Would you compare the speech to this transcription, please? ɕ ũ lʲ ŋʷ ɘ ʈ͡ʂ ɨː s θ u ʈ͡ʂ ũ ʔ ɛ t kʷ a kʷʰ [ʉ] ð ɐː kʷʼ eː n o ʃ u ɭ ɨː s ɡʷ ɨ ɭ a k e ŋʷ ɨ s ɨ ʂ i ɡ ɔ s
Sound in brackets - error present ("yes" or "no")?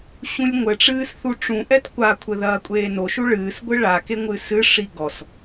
yes